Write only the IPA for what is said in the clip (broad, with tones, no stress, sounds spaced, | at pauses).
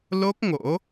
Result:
l o˦˥ k̚ ŋ o̰˧˥